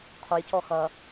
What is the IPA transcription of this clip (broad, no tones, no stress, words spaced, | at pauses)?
qʰojcɔ xɐ